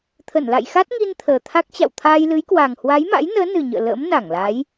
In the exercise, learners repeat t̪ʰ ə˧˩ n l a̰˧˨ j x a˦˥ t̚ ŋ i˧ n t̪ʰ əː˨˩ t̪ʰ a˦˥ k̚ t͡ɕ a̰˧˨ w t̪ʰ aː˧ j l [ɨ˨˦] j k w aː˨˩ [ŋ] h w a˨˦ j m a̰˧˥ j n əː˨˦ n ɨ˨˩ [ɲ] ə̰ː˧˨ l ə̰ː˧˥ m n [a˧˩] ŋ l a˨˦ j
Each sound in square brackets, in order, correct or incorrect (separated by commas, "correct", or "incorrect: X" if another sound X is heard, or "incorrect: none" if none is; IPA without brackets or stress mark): correct, correct, correct, correct